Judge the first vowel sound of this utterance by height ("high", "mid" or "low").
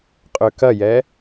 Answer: mid